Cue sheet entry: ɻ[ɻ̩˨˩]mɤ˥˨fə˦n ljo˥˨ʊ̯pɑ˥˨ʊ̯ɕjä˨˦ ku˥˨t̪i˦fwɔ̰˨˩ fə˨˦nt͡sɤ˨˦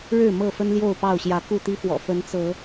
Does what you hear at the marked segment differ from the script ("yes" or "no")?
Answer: yes